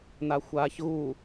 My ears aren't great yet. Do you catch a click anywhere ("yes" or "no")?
no